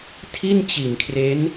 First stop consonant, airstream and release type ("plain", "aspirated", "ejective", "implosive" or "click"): aspirated